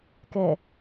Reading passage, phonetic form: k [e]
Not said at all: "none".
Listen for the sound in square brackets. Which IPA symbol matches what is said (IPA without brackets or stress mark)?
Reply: ɛ